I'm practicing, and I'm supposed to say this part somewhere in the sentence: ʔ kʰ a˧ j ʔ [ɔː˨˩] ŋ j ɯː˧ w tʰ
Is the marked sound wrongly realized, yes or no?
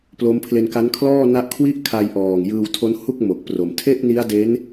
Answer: no